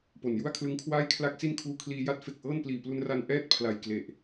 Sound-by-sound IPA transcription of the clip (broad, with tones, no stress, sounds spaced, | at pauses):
p o˨˩ n j u˥˩ a̯ kʰ l ɯ˦˥ ŋ kʰ w aː˥˩ j kʰ l a˥˩ k̚ s i˥˩ n kʰ uː˦˥ kʰ l iː˧ j a˦˥ t̚ f e˨˩ k̚ ʔ ɤː˥˩ n p l iː˨˩ p l u˧ n r a˧ n ʔ ɛː˥˩ t̚ pʰ l a˨˩ j k l e˨˩ ʔ